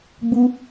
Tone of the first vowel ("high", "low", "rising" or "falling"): high